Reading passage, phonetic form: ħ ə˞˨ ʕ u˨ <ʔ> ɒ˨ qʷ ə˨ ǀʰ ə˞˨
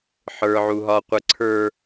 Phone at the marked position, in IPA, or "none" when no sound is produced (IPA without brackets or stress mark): ɦ